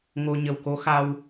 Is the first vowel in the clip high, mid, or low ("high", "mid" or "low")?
mid